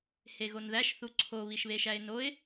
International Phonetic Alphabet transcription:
h e ɣ o n ð æ ʃ θ u ǀʰ o β i ʃ β e ʃ æ ɪ̯ n o ɪ̯

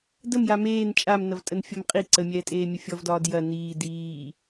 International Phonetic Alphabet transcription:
d ə m j a m eː n t͡ʃʼ a m n ɐ v tʼ ə n fʲ ɒ m qʼ i ǀ ə mʲ ɛː tʼ eː mʲ ə fʲ ɔ v d ɒː d j ɐ n iː d iː

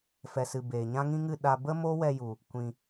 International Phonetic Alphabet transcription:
f ɛ˨ s ɨ˨ b eː˨ ɲ ã˦ ŋ ĩ˦ ŋ ɨ˦˨ ɗ a˧ b ə˦ m o˦ w ɛ˧ j u˨ | kʷ ĩ˧

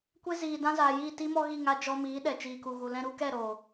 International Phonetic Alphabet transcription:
kʷ e˦ z iː˨ d ã˦ z aː˨ j iː˦˨ t i˦ m ɔ˦ ɣ i˦˨ ŋ a˧ d͡ʒ ɔ˧ m iː˨˦ ɗ ɛ˨ t͡ʃ iː˨ k u˨ ɣ u˨ l ɛ̃˧ ɾ u˦ k ɛ˦˨ ɾ o˨

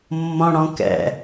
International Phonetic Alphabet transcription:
mː ɔ̃ ɽ ɔ̃ k ɛ̰

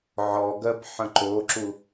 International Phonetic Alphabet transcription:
ʕ ɔ ɡ ɜ b ħ ə̃ ǃ o ǁ u

